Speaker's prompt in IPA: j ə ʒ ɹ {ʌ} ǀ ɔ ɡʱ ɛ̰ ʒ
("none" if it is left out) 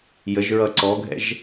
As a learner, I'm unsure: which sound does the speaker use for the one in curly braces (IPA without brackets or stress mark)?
ʌ